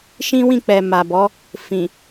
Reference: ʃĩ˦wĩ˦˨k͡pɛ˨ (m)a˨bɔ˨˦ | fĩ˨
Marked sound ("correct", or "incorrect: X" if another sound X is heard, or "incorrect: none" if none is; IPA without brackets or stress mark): correct